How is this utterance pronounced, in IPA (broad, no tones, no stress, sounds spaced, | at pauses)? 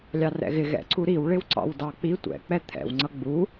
lʲ ɑ r ɛ̰ ɣ ɪ ɣ ɛ̰ ǀ u ɾ i w ɭ ɪ w ǀ ɑ̰ w d ɑ k͡p i tʷ ɛ̰ k͡p ɛ t̪ʰ ɛ̰ w ŋ͡ǀ ʌ ɡ͡b u